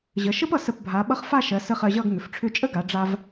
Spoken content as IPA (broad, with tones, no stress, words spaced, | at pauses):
ʑə˩˧ʃə˥pʌ˧ sə˧˩pbʱa˩˧ ɓʌ˥χ fa˥˧ʃɜ˩˧sə˧ χɜ˧ʑʌ˥˧ɡ ŋʏ˩˧fʈ͡ʂʰʏ˥˧ t͡ʃʼə˥ɡa˩˧ ɖ͡ʐa˧v